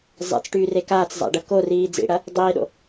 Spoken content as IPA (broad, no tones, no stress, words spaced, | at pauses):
zˤḛt͡sʈyːre kaːt͡szˤa̰ɖə koriː d͡zḭɽɐ | dˤiːɗo̰